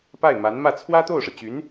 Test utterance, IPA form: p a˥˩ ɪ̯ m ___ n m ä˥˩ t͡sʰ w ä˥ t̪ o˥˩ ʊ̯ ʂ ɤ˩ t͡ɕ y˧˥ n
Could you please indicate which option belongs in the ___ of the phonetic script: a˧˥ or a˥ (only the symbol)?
a˧˥